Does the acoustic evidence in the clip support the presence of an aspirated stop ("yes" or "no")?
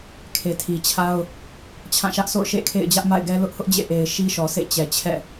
yes